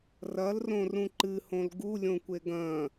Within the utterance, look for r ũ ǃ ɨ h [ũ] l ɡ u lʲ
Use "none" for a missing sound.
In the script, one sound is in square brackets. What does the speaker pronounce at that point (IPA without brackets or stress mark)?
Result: õ